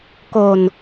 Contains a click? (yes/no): no